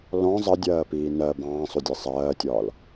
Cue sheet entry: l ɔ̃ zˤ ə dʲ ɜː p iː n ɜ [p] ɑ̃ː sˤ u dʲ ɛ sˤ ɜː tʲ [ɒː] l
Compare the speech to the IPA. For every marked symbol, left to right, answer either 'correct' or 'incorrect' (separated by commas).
incorrect, correct